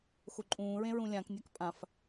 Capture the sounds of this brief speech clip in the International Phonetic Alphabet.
xoǃʼũːɹẽ ɹũlʲãknʲak pʼãf

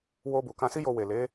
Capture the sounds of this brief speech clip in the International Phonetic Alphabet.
wo˧bu˨ kã˧si˦jo˧ we˨ le˨˦

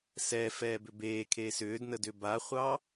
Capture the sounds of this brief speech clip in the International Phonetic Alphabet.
sɛ fɛːbʏbeːkʰeːs ʏːdnəd ʏbaχʷɑ

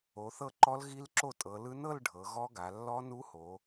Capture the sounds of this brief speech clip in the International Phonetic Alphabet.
o˩˧θɤ˥˩ǃɔ˦˥l ɣi˦˥lǁo˥˩tʼɤ˩˧lɯ˦˥ nɤ˥˧l ɖʱɤ˩˧ɣɔ˦˥ɡa˩˧ lːɔ˦˥nu˦˥ho˩˧

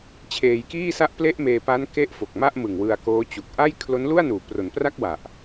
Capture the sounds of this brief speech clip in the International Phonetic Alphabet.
t͡ɕʰeː˧jkiː˥˩sa˥˩ʔ ple˥˩ʔmeː˧pa˦˥n ke˥˩ʔ fo˨˩k̚ma˥˩ʔmɯ˨˩ŋ wɯ˧a̯koː˦˥t͡ɕu˨˩k̚ ʔa˥˩j kʰlo˦˥nlu˥˩a̯nuː˩˦pro˩˦n pra˥˩k̚wa˨˩ʔ

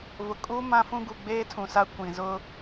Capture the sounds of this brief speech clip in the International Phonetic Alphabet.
vʊ˨kʼuː˦ mã˦fũ˦ɡu˨ ɡ͡beː˦tʰũ˨sa˦ kʷĩ˨ zʊ˦

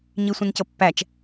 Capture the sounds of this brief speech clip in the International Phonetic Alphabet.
ɲisʷĩncɤpːæt͡ʃ

